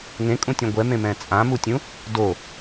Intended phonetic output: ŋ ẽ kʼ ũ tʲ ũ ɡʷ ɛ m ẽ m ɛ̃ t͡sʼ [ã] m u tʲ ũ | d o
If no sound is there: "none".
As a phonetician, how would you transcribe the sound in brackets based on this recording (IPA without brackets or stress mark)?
ã